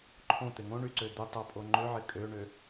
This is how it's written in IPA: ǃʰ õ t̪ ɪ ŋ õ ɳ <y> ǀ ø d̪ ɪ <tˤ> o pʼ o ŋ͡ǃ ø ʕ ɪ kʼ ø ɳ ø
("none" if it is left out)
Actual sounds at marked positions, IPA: y, tˤ

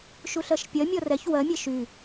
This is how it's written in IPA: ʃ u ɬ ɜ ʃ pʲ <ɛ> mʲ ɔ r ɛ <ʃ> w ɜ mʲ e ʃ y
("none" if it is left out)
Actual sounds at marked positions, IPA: ɜ, ç

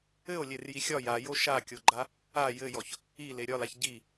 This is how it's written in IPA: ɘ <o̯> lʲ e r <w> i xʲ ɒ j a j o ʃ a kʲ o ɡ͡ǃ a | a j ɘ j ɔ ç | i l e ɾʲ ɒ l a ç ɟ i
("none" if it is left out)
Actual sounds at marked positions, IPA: o̯, j

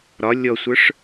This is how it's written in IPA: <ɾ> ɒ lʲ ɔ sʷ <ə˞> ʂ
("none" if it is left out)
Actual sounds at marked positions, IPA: ɾ, ə˞

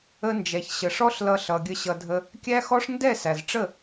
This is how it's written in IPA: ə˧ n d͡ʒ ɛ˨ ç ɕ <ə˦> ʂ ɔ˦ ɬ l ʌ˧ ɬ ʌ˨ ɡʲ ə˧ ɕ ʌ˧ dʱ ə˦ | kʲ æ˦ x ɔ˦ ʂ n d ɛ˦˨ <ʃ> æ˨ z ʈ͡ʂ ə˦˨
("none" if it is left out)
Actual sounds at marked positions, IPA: ə˨, s

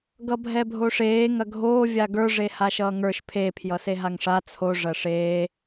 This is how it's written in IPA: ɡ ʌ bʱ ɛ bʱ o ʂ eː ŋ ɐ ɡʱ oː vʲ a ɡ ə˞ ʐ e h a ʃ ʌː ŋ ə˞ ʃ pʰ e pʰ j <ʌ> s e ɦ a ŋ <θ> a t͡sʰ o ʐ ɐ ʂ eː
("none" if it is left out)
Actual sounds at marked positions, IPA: ʌ, ʂ

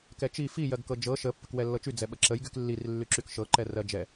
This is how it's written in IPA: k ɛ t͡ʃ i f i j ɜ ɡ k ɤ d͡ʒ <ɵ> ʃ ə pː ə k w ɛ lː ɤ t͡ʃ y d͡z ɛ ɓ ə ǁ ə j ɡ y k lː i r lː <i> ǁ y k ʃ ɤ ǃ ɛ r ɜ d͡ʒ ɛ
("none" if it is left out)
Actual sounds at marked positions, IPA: ɤ, y

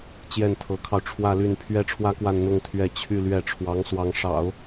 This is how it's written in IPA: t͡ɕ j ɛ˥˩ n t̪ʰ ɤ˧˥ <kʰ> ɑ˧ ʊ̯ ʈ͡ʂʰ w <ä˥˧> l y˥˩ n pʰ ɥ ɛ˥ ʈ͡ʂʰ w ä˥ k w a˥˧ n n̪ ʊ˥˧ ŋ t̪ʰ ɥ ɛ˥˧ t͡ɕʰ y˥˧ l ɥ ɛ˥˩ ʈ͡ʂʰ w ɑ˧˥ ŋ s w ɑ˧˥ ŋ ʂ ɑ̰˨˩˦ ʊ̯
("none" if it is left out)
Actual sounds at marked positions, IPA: kʰ, ä˥˧

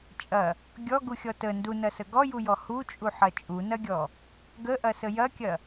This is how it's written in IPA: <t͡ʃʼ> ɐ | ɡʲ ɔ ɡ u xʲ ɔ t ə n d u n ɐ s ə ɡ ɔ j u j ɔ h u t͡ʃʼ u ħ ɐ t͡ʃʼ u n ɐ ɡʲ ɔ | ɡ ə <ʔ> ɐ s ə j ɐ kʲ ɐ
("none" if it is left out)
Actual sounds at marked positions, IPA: t͡ʃʼ, ʔ

